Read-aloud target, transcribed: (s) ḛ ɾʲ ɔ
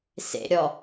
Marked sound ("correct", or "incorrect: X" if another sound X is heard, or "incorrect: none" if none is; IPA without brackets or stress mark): correct